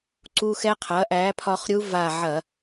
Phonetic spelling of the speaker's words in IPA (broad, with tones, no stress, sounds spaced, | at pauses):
ǀ u˧ x ɛ˧˥ qʰ ɐ˩˥ ʔ æ˩˥ pʰ ɒ˧ χ ɾʲ u˧˥ v a˧˩ ʕ ɐ˧˩˧